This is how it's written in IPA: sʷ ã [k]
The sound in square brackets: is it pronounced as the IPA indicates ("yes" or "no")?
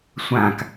yes